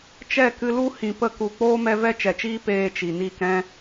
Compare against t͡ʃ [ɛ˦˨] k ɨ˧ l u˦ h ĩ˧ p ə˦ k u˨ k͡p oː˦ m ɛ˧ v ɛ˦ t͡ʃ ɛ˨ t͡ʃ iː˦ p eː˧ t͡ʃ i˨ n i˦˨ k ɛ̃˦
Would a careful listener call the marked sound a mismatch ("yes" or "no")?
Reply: no